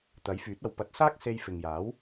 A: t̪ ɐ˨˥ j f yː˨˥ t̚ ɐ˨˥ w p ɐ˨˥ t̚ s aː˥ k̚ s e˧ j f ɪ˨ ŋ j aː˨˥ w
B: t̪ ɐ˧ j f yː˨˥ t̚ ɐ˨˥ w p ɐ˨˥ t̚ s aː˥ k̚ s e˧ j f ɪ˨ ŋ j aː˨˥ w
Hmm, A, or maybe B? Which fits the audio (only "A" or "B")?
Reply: A